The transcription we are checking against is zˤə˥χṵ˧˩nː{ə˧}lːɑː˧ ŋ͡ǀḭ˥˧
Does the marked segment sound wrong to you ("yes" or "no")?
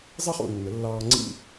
yes